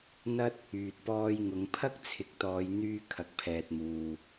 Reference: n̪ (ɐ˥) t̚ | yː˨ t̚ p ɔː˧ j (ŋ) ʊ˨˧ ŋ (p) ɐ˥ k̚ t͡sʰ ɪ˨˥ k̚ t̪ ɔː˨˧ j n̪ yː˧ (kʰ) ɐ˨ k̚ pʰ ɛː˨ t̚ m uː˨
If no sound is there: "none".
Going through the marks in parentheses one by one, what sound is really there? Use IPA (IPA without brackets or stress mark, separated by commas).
ɐ˥, ŋ, pʰ, kʰ